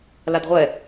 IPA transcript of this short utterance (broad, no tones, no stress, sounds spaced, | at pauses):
l a d ʁʷ ɛ